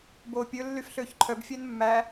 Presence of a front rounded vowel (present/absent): present